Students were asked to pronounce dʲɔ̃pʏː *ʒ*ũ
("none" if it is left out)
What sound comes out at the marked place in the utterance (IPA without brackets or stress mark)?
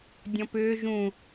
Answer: ʒ